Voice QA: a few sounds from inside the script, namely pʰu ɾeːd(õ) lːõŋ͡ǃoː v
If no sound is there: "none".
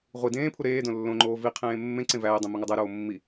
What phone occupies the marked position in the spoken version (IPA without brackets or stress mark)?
õ